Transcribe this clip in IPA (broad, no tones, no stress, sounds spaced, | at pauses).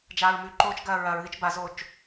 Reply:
d͡ʒ aː ɹ m ʉ ǃ oː t͡ʃ ɡ ɐː ɹ ɐ ɹ ð i t͡ʃ b a z o t͡ʃ